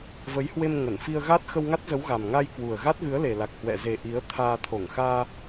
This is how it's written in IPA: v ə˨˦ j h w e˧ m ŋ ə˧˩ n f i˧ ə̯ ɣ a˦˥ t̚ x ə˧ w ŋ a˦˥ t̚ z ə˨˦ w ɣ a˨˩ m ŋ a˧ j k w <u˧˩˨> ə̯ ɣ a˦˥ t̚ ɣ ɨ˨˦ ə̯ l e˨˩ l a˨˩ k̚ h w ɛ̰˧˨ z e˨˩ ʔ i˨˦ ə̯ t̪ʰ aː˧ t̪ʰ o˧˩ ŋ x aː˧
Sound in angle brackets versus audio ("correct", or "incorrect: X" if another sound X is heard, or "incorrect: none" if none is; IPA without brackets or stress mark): incorrect: u˨˩